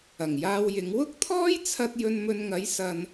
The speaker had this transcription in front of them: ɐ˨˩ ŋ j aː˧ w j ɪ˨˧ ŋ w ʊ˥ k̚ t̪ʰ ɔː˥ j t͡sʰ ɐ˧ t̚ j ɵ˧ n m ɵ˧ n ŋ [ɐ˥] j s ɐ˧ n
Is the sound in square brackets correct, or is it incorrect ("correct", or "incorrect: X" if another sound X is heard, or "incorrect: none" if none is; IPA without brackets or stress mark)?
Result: incorrect: ɐ˨˥